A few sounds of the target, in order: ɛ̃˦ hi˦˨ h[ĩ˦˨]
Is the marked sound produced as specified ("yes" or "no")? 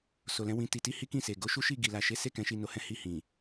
no